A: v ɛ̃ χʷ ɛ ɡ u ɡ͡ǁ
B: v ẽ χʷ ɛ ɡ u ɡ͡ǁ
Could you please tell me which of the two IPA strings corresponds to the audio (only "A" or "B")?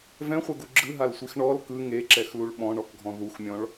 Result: A